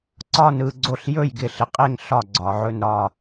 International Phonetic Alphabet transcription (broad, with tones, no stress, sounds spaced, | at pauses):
ǀ ɒ˦˨ n ɯ˦˨ ɡ͡ǀ o˦˨ ɬ j ɵ˦˨ j ɡ ɪ˨ ɬ ɪ˨ qʼ e˦˨ ŋ ɬ ɒ˦˨ ɡ͡ǀ ɒ˨ ʕ ɵ˦˨ n ɾ ɒ˦˨